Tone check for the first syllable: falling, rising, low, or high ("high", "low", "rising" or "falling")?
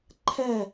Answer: falling